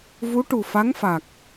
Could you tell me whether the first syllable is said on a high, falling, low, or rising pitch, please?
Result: rising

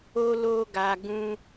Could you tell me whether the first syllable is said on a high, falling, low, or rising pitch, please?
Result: high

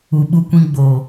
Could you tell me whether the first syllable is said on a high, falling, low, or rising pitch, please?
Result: low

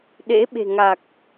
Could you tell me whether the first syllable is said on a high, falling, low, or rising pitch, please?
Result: rising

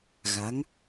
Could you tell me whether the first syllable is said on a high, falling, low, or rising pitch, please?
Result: rising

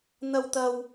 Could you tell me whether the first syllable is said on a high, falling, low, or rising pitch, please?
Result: high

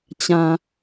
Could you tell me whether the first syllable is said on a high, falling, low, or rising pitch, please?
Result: low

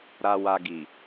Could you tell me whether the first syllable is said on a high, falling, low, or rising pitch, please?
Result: low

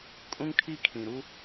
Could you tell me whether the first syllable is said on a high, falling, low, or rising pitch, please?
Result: high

